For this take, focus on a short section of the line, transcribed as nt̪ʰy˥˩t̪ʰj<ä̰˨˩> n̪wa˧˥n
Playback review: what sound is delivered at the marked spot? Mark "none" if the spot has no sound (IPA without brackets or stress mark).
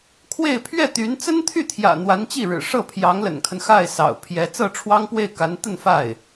ä̰˨˩